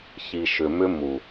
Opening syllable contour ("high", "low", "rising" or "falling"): low